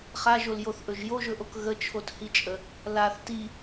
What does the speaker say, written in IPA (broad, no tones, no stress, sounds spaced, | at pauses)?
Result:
χ a ʒ o l j o θ ʔ ɵ ʒ j o ʒ ɵ ʔ o k ɣ ə t͡ʃʰ o t h i t͡ʃʼ ə | l a θ t i